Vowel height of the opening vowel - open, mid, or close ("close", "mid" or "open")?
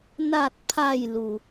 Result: open